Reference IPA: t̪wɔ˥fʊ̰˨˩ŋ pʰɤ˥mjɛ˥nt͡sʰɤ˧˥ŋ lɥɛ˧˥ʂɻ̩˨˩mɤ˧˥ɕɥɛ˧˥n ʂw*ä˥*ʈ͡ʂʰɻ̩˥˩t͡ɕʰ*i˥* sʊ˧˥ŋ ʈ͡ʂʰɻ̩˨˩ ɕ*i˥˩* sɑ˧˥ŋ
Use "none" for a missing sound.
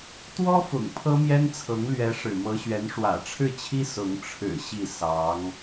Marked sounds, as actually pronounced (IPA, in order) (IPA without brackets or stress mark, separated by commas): ä̰˨˩, i˥, i˥˩